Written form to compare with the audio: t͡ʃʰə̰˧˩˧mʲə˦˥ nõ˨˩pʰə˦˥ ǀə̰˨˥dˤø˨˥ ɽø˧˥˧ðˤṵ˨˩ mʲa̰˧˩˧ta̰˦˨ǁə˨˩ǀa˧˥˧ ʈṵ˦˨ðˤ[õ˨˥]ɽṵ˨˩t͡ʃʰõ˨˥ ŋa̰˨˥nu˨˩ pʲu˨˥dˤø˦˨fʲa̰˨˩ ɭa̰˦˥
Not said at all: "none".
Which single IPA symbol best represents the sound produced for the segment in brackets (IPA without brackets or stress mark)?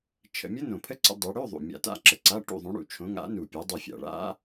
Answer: õ˨˥